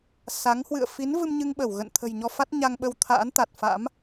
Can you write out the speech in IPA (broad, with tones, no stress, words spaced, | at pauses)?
sa˨˦ŋ hwɨ̰˧˨ə̯ fi˨˦nvɨ˧m ɲɨ˧ŋɓə˧˩w ɣə̰˧˨n t̪ʰə̤˨˩jɲɔ˧fa˦˥t̚ ɲa˧ŋɓə˧wt̪ʰa̰ː˧˥nt̪a˨˩t̚ fa̰˧˥m